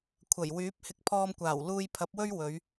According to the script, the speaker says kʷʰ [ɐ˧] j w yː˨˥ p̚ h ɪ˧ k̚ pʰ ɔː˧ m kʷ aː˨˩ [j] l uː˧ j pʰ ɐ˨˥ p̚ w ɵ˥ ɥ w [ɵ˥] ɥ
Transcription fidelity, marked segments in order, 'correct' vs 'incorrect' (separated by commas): incorrect, incorrect, incorrect